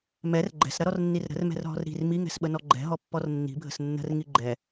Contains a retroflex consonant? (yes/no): no